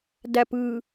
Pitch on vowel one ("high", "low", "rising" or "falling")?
low